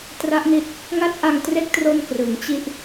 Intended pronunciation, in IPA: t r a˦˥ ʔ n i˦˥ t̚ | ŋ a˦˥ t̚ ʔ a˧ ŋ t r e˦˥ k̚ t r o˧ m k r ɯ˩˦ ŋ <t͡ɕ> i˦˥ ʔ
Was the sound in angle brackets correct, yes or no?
yes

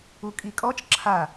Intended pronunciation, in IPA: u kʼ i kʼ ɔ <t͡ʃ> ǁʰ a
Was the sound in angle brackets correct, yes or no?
yes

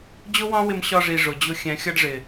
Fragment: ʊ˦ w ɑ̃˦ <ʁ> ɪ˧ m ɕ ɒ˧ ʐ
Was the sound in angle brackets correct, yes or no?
no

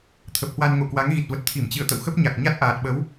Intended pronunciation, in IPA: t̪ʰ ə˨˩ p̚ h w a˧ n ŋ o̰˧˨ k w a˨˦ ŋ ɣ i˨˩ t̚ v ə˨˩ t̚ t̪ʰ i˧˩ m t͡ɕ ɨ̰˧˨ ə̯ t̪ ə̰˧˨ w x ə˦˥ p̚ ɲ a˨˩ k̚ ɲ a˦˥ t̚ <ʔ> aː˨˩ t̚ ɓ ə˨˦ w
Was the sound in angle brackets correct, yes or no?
yes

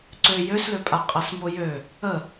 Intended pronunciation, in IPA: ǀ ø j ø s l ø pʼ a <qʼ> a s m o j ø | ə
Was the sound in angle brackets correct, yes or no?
yes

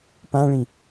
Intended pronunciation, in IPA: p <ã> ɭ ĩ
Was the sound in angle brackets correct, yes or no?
yes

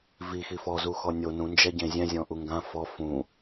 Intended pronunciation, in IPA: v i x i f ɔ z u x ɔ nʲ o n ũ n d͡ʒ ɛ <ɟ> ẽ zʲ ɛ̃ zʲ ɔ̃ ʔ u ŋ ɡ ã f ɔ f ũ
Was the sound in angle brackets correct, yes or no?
yes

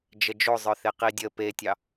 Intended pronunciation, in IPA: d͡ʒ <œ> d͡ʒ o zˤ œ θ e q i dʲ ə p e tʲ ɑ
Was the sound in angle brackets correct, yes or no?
no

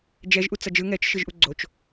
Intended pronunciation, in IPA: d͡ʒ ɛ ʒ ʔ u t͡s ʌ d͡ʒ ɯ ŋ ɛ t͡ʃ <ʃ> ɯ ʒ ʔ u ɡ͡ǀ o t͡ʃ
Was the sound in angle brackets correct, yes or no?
yes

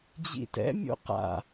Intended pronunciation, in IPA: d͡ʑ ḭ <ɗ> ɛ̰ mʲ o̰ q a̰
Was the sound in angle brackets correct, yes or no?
no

